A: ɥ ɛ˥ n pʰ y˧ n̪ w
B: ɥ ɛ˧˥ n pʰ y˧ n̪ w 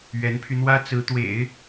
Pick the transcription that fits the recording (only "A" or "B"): B